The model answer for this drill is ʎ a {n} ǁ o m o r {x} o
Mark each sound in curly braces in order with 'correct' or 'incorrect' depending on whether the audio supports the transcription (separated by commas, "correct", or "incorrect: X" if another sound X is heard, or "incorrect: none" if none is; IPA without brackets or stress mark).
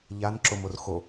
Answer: correct, correct